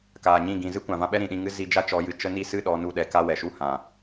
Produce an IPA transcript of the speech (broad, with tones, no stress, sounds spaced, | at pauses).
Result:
k aː˨ ɲ ĩ˦˨ ɡ ĩ˨ z ɨ˦ kʷ ã˨ v ã˧ ɓ ɛ˦ ɾ ĩ˨ ɗ ĩ˧ ŋ ɨ˦ z i˧ d͡ʒ a˦ t͡ʃ ɔ˨˦ j ɨ˨ t͡ʃ ə˦ n i˦ s ɨ˦ ɗ ɔ˨˦ n u˧ ɗ ɛ˨ k a˦ w ɛ˨ ʃ u˦ h ã˨